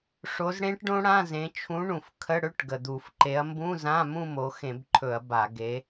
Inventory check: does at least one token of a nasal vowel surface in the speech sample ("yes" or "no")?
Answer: yes